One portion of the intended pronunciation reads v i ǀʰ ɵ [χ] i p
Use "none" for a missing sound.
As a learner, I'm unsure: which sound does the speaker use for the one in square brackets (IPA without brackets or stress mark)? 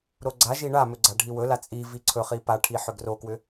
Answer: χ